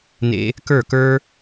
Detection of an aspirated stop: absent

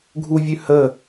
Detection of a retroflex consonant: absent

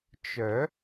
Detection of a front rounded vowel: present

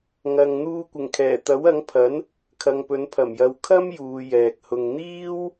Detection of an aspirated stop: present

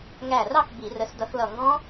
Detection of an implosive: absent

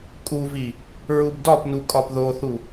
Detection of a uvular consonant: absent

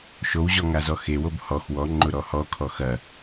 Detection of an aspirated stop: present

